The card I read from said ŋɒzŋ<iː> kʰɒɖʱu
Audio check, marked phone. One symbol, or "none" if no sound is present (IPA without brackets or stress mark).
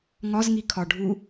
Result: i